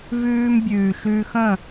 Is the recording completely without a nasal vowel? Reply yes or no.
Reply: no